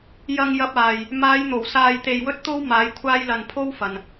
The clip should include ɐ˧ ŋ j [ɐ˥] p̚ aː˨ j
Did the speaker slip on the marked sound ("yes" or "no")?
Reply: yes